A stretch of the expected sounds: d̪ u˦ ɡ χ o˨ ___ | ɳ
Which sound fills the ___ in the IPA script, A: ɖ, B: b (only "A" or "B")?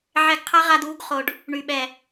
A